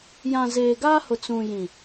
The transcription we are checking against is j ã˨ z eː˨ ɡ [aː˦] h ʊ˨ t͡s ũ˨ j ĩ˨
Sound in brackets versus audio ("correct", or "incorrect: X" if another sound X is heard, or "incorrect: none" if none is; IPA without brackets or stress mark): correct